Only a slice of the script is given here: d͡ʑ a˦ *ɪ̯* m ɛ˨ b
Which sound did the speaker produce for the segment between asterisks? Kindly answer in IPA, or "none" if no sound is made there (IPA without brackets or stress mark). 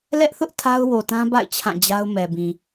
ʊ̯